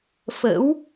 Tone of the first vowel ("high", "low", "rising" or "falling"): rising